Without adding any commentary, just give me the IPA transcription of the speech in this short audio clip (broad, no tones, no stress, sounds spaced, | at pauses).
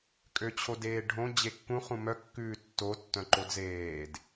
kʼ ø t͡ɕʰ o d eː ɖʱ õ d͡ʑ e kː ũ χ ũ m œ kː ʉː tː o tː œ̃ ǃ o d z eː d